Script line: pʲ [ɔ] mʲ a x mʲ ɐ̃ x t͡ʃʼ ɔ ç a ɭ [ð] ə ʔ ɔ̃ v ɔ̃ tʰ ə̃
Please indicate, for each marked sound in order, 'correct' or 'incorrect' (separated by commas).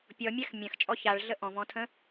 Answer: correct, incorrect